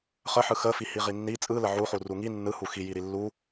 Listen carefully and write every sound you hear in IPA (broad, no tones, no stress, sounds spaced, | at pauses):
χ ə ħ ɯ x ə f i h i ʁ i nː i t͡sʼ ɯ l ə ʕ u χ u r u ŋ i nː ɯ h u x i j i ɾ i lː u